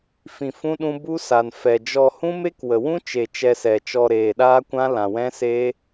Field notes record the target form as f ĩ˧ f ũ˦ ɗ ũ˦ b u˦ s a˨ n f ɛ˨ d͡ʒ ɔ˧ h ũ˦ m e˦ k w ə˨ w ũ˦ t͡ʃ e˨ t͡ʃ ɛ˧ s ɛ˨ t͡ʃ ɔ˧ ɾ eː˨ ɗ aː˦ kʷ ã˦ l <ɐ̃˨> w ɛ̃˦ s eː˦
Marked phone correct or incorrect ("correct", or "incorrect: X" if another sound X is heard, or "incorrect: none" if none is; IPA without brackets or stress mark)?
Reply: incorrect: ã˨